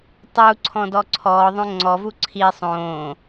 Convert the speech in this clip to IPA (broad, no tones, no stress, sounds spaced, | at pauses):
tˤ u ǀʰ ɔ̃ d ɔ ǀʰ ɔː ðˤ õ ŋ͡ǀ ɔ v u ǀʰ i sˤ õː